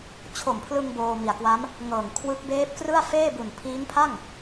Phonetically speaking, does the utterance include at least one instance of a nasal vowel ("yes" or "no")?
no